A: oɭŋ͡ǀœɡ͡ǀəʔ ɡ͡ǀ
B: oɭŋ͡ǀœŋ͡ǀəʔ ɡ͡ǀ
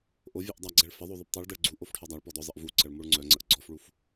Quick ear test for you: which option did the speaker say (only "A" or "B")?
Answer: B